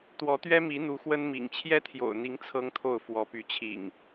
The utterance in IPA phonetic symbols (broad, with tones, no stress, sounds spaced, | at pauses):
t̪ w ɔ˨˦ t̪ ɥ ɛ˦ m i˨˦ n̪ u˨˦ x w ə˦ n m ḭ˨˩ ŋ t͡ɕʰ j ɛ˦ t̪ʰ j o̰˨˩ ʊ̯ n̪ i˨˦ ŋ t͡sʰ ɤ˦ ŋ t̪ʰ o˥˨ ʊ̯ f w ɔ˨˦ p y˨˦ t͡ɕʰ ḭ˨˩ ŋ